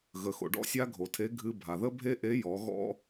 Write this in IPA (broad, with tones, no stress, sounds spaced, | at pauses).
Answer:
ɣ ə˩ x o̰˩ ɖ ɔ̰˥ sʲ a˥ ɡʱ o˩ tʰ e˧˥ ɡʱ ɨ˧ bʱ a˩ ð ə˥ bʱ e˥ ʔ e˧˥ j ɔ˩˧ ɣ ɔ̰˥